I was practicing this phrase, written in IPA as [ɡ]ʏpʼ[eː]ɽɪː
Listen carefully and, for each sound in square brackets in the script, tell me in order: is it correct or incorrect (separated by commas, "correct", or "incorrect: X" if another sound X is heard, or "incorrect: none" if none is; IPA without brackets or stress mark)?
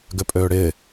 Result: correct, incorrect: øː